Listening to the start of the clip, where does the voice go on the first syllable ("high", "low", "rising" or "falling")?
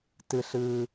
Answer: low